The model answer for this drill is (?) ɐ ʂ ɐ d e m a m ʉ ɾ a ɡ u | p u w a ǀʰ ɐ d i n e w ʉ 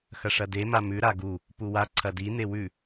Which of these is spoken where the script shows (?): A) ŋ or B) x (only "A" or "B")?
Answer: B